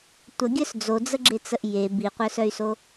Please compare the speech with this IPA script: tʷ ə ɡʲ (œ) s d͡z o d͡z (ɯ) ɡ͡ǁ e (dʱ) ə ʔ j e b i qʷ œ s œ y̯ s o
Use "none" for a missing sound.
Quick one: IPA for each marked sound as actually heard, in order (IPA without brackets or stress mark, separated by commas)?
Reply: œ, ə, t͡s